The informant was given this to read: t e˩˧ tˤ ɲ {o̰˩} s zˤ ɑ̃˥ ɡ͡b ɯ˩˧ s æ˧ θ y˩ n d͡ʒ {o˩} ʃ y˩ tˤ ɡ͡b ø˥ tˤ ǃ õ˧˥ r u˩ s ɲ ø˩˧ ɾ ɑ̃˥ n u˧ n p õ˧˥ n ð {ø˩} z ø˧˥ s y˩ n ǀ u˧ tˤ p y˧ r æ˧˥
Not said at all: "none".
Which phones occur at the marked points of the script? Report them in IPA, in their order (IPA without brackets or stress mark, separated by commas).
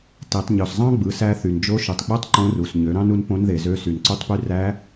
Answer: o˩, o˧˥, e˩